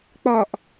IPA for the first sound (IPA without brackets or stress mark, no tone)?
k͡p